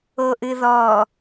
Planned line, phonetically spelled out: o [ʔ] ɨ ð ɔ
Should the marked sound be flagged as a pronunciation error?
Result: no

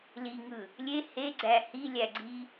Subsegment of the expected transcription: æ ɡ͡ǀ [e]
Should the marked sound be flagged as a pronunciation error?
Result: yes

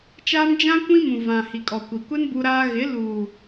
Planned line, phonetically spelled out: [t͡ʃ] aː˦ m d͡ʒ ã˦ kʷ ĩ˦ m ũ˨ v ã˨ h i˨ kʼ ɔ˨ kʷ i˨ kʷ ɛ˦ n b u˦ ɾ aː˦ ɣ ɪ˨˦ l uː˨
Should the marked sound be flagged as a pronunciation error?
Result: no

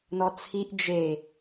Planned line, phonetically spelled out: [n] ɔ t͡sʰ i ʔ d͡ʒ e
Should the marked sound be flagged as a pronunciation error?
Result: no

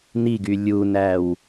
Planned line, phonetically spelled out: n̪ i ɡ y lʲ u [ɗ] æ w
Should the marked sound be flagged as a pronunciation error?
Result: yes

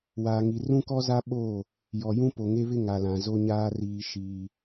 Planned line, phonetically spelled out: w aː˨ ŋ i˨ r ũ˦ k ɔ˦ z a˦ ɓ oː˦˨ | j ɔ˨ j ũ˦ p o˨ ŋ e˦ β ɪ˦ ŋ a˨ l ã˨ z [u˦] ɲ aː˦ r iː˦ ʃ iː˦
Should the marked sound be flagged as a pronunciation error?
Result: yes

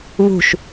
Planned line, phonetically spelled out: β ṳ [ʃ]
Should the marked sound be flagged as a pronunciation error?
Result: no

